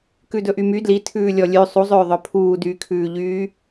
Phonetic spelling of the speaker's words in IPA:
k ʉ d ɵ ʔ y m y d l i tʰ ʉː lʲ ɔ lʲ ʉ sˤ u zˤ øː ðˤ œ pʰ uː d yː kʰ ʉː ʎ yː

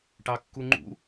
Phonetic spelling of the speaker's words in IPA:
ʈ ɑ kː u ŋ͡ǃ ṵ

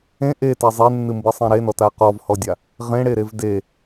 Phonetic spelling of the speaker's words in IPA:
ẽ ʔ e t ɛ zˤ e nː ɨ m b ɨ sˤ ɛ̃ ɾ e n ɔ t a q ɔ v h ɔ dʲ a | ʁ ẽ ɽ e ɾ e v d e

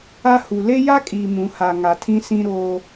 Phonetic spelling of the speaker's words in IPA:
a˦ h u˨ l e˦ j a˦ kʼ iː˨ m ũ˨ h a˨ ŋ a˨ tʰ ĩ˦ s ĩ˦ ɾ oː˦

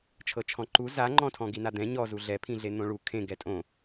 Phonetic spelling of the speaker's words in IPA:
t͡ʃʰ ɤ t͡ʃʰ ɔ̃ ǃ u z a ŋ͡ǃ ɔ̃ tʰ ɔ̃ ɡ i n a d̪ ɛ̃ ɲ ɔ z u ɮ ɛ pʰ ĩ ɮ e n̪ õ ɭ u kʰ ẽ ɡ ɛ tʼ õ

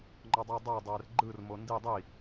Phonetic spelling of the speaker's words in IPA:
ŋ͡ǃ ɔ dˤ ə˞ dˤ ə˞ dˤ ɛː r ɡ͡ǃ ɯ r m o n d i dˤ i

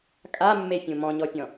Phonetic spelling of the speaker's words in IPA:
kʼ a mː e fʲ ũ m ɔ̃ ɲ ɔ pʲ ɔ̃

